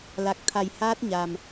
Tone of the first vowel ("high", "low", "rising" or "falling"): low